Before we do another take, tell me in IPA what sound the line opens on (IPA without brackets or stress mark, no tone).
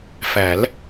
f